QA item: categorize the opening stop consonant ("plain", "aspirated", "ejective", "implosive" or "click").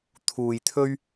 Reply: aspirated